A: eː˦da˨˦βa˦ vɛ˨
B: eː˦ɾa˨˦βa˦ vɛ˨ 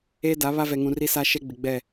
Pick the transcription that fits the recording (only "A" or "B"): A